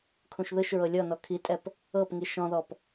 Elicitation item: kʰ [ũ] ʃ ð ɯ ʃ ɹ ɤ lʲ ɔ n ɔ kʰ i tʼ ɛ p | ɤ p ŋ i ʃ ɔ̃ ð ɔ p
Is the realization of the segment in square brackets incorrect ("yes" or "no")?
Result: no